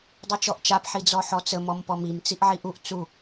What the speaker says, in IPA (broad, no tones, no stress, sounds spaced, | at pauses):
dˤ u t͡ʃ ɔ ʔ t͡ʃ a p ħ i d͡z ɔ ħ ɔ t͡s ə m ɔ m p ɔ m i m t͡s i ʔ ʕ i ʔ u ʔ t͡s u